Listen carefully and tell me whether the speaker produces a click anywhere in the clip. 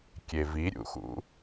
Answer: no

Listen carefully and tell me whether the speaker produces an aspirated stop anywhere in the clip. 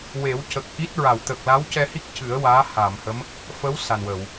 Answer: no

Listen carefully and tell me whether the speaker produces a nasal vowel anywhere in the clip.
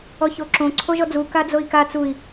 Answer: yes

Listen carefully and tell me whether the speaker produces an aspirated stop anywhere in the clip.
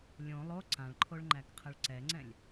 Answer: yes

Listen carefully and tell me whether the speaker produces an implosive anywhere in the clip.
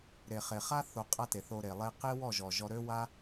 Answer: no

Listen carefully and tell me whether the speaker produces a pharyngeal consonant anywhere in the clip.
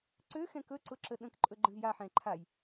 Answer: yes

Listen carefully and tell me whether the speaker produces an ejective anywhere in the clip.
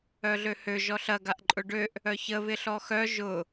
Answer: yes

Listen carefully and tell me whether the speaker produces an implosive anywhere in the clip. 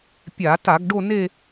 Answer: no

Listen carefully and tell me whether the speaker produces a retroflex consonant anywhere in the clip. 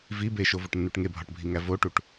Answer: yes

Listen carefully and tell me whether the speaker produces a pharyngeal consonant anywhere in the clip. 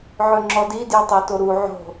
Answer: yes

